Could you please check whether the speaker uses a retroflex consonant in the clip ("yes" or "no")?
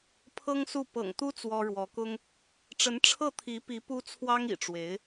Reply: yes